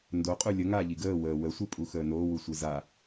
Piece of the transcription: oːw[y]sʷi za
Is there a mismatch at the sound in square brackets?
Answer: yes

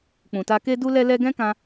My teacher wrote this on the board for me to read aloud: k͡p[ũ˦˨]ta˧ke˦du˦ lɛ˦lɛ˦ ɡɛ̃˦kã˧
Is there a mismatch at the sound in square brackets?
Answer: yes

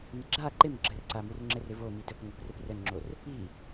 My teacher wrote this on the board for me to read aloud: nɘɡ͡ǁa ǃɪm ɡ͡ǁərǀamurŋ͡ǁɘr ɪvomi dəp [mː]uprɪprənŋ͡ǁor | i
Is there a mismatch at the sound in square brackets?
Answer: yes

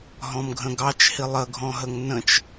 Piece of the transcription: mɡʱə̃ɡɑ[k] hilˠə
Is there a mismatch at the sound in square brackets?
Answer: yes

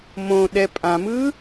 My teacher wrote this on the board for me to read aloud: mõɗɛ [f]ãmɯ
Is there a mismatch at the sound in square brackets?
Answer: yes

